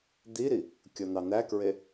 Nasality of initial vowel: oral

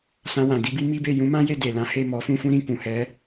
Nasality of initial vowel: nasal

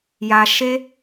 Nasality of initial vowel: oral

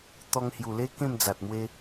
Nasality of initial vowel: oral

